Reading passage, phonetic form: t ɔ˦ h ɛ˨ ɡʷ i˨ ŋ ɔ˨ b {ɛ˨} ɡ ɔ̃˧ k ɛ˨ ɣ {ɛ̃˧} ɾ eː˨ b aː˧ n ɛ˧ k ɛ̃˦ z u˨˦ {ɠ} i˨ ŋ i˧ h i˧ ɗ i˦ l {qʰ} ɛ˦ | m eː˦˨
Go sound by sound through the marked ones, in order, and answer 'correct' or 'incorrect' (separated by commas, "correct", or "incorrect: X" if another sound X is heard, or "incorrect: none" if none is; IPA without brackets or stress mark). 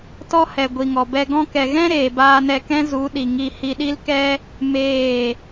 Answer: incorrect: ɛ˧, incorrect: ɛ̃˦, incorrect: ɗ, incorrect: k